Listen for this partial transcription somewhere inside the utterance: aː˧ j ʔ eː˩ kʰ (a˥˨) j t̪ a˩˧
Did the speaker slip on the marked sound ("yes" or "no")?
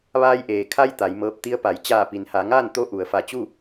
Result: yes